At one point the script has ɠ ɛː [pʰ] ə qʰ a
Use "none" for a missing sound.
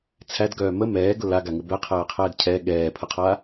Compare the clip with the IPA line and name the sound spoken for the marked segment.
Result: pʰ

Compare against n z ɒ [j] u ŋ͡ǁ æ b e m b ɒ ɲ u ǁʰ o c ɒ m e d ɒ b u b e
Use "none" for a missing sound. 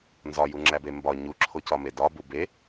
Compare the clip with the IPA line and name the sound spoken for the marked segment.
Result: j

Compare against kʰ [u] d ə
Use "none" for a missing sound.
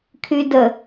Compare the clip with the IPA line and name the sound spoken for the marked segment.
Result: y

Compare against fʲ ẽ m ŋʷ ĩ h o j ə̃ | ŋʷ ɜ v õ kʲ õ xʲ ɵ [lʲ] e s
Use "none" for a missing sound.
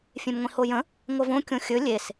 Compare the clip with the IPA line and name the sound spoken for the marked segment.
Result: lʲ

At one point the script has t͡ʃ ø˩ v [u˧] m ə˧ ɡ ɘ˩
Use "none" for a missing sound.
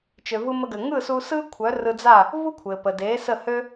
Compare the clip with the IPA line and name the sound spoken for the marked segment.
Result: ɯ˧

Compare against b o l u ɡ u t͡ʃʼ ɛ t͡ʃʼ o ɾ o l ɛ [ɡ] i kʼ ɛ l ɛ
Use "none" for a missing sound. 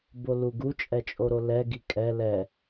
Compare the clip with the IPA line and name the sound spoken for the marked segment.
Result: ɡ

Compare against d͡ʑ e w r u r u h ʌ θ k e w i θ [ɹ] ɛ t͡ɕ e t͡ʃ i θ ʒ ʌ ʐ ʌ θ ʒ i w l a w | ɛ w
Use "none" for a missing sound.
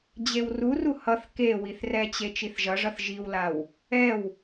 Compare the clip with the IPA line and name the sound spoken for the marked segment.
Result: r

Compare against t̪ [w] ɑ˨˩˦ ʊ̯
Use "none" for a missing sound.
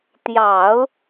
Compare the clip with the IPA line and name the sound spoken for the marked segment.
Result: j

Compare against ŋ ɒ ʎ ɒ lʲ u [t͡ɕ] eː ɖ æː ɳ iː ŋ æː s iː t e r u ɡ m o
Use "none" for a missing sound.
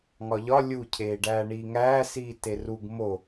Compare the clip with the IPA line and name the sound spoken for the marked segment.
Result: cʰ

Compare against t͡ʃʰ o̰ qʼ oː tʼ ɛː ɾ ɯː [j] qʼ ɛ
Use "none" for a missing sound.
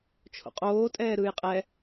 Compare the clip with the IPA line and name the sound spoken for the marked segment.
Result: j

